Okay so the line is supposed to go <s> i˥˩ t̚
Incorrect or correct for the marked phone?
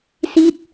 correct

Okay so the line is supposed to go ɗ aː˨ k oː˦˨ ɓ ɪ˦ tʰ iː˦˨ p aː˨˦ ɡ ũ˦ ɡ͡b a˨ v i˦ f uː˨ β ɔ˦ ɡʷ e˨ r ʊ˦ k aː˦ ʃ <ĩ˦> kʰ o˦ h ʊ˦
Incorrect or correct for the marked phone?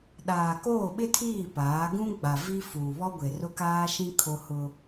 correct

